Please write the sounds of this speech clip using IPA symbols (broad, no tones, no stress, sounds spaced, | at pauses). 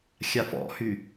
xʲ a f ɔ̰ h y